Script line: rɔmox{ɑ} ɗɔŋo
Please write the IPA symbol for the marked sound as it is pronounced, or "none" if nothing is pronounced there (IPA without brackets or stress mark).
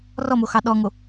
ɑ